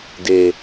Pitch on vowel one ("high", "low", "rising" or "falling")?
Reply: low